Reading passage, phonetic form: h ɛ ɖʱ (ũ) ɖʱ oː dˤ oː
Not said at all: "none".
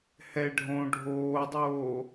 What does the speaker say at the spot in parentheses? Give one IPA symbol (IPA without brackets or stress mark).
õ